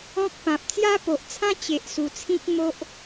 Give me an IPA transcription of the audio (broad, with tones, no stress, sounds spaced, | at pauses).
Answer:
ɔ̃˦ k̚ p ã˨ p̚ t͡s j a˦ p o˨ ʔ t͡sʰ ã˦ t͡ɕ e˨ ʔ s u˨˩ t͡sʰ ĩ˦ k̚ m o˦ ʔ